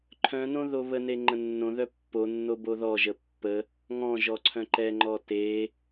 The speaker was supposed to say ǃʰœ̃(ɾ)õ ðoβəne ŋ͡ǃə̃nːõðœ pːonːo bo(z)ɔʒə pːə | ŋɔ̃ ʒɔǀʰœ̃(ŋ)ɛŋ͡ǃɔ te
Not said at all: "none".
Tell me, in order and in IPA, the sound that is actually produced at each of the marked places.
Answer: n, ð, ǃ

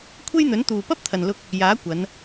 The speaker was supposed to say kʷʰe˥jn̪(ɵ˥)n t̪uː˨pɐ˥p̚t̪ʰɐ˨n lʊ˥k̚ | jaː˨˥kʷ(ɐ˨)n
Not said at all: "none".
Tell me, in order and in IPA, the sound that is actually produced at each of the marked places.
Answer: ɵ˨˥, ɐ˨˧

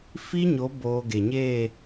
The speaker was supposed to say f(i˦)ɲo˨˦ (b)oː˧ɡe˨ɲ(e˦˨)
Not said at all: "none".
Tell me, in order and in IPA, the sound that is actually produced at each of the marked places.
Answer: i˦, b, e˦˨

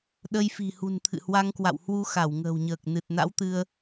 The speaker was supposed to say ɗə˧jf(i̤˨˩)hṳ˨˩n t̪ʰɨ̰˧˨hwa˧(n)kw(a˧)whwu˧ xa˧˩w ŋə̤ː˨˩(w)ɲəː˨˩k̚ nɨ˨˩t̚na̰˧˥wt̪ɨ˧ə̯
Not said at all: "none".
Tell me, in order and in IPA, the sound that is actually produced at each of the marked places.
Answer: i̤˨˩, ŋ, a̰˧˨, w

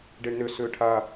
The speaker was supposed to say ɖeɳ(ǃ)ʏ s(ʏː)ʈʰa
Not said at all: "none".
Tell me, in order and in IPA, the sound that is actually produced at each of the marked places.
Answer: n, ʏː

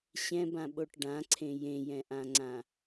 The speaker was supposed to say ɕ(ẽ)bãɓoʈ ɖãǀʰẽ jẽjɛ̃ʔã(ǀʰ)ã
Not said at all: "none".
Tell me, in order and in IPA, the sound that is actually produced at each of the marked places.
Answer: ɛ̃, ŋ͡ǀ

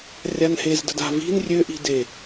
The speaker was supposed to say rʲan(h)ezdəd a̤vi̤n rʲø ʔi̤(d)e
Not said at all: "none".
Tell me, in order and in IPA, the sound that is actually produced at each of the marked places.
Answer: h, d

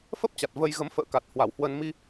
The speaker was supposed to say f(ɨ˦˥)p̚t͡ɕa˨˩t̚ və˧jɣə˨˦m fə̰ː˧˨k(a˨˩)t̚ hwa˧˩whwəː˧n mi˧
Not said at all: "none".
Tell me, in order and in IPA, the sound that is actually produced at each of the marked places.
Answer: ə˦˥, a˨˩

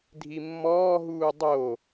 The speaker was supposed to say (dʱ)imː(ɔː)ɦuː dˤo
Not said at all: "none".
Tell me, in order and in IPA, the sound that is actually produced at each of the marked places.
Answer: dʱ, ɔː

